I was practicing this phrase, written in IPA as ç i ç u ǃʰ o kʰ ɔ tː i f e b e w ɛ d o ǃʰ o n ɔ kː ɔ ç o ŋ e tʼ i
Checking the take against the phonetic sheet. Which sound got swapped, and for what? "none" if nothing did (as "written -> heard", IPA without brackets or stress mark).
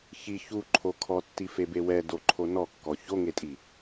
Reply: none